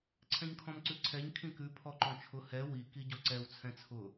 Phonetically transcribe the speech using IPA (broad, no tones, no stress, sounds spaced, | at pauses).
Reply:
ǀʰ ɛ̃ ɲ kʰ ɔ̃ m ǀ ʉ ǀʰ ɛ ɲ kʰ ĩ k ʉ pʰ ɔ ǃ ɔ̃ t͡ʃʰ ʊ h ɛ w i k i ɟ ɔ ǀ ɛ w t͡sʰ ɛ̃ t͡sʰ ʊ